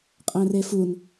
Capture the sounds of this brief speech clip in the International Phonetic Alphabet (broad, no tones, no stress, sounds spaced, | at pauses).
qʼ æ̃ r e f u n